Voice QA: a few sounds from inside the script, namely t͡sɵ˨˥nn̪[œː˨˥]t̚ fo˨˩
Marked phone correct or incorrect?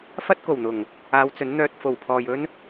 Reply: incorrect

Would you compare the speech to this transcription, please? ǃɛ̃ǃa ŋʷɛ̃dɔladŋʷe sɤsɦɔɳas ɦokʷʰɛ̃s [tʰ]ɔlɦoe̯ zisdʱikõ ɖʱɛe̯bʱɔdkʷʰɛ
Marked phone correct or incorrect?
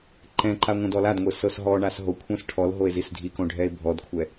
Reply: incorrect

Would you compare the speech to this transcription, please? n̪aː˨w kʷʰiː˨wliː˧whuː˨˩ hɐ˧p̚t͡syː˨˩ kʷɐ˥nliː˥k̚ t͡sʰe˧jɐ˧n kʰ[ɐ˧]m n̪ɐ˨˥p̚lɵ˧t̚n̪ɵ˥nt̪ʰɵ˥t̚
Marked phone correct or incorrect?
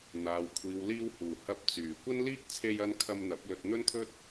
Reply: correct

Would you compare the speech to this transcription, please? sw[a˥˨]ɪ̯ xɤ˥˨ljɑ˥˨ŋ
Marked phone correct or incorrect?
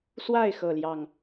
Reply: correct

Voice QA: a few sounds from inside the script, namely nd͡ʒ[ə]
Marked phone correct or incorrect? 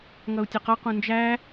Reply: incorrect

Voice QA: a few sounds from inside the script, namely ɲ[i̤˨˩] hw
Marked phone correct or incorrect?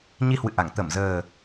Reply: incorrect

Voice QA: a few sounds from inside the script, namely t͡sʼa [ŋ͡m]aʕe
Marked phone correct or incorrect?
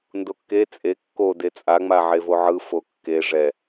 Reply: correct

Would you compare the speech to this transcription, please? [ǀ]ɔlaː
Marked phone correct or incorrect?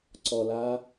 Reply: correct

